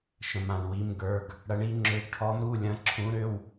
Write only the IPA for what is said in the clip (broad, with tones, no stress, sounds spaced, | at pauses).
ʃ ə̃˧ m ã˧ ɳ w i˧˥˧ m ɡ ə˞˧˥˧ ɡ | ɽ ɐ˧˥ ɳ i˧˥ ŋ͡ǁ ø˧˥ ɡ ʈʰ ɔ˧˥ m ɾ u˧˥˧ lʲ ɐ̃˧˥ ǁʰ ũ˧˥ ɾ ø˧˥˧ w